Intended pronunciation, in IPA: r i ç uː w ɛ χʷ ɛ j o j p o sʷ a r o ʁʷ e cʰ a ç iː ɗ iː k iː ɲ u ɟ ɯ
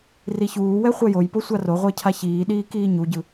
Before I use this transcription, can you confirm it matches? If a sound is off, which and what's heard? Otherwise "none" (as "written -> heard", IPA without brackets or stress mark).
none